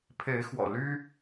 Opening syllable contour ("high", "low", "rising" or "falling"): rising